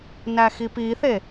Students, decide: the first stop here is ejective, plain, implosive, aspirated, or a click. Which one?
plain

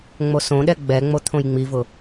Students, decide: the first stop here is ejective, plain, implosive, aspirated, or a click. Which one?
implosive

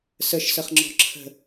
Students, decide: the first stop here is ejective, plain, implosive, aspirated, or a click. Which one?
click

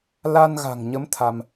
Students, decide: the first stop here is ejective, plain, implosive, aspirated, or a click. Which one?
aspirated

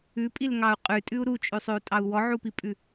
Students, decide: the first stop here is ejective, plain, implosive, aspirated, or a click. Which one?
ejective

